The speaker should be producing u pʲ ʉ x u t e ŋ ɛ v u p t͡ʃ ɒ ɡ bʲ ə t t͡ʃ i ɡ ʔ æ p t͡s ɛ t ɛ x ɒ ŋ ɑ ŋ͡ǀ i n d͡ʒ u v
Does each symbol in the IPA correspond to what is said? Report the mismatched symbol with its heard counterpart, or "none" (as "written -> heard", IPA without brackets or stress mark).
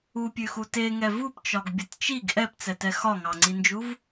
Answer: æ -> ɛ